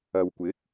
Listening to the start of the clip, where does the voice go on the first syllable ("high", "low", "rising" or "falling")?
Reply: low